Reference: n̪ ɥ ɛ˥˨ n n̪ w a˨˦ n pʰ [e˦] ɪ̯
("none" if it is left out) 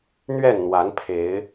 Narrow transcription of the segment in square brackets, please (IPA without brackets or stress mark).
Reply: e˨˦